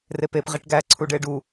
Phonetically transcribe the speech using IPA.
repep ʁiʈɡæ ǀʰuɖeɖu

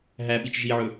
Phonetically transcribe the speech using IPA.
ɦæɓit͡ʃ ʒiʕɵ

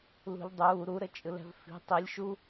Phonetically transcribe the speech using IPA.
lṳʎdˤuː ɾuɾət͡ʃʼɯl ɛ̤vfi̤ tˤilʲ ʃu

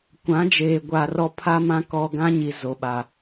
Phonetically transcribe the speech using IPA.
kʷã˨˦d͡ʒeː˨ ɡʷa˨rɔ˦ pʰa˦mã˦ kɔ˦ ɡã˦ɲi˨ zo˨ ɓa˨

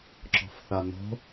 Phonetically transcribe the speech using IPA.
ǁɔ̤fθano̤

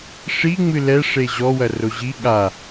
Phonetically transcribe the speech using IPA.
ʂi ŋ͡mɨlɛ ʂeʑɔwɐ roʑi ɠa

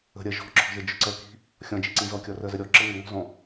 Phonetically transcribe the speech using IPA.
ə̤ɾʲɜ ʒɔ̤ǁɔ̤ʒə d͡ʒœǀɜki̤ | xʲɔ̃ d͡ʒi̤ǀĩzɔkʲɔ rɜzəɾʲɔǁə ŋəŋɔ̤zɔ̃

